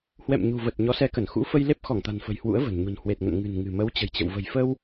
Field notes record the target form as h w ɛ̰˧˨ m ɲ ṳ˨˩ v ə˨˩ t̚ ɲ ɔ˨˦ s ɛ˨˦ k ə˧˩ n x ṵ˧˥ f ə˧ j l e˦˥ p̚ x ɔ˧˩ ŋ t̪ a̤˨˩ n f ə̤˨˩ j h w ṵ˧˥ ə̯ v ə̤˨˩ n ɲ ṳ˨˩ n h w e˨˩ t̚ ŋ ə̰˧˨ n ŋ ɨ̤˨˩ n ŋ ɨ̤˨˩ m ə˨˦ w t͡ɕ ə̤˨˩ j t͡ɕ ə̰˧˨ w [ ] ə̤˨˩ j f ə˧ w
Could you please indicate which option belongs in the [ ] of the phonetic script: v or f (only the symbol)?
v